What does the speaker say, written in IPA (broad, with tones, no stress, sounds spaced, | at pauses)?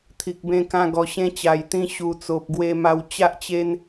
t̪ʰ i˨ k̚ b ẽ˧ k ã˧ ɡ ɔ˨˩ ɕ ẽ˧ t͡ɕ a˨˩ j t̪ ĩ˧ ɕ u˨˩ t͡s o˨ p̚ ɡ w e˧ m a˧ w t͡ɕ a˦ ʔ t͡ɕ e˦ n